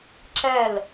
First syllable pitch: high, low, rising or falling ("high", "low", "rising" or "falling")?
falling